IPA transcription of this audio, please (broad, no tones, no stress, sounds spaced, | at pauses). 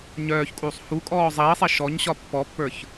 ɲ œː ç kʼ uː sˤ h u kʼ ɔː zˤ iː sˤ i ʃ ɔ ɲ ɕ ɒ pː ɔ pː ə˞ ç